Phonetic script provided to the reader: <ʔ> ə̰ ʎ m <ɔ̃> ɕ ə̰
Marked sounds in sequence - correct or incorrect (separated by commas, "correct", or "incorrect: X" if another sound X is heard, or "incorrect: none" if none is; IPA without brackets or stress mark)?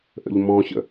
correct, correct